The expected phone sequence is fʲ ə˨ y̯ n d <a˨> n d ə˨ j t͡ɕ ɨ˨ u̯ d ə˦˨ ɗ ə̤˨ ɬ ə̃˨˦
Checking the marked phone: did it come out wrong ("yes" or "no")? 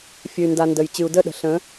no